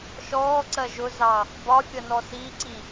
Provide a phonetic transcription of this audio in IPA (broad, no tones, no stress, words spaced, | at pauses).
ʃɔːǀɜ ʒʊzɑ | bɒfʲʌ nɔsiǀi